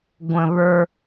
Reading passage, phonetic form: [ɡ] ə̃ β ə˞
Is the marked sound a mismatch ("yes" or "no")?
yes